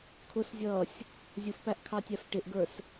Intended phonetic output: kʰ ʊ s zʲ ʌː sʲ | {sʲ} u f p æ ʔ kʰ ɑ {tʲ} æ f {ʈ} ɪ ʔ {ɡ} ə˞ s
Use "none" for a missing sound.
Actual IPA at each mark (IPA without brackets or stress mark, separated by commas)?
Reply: zʲ, tʲ, ʈ, ɡ